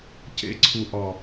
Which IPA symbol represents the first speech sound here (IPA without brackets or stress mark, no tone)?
c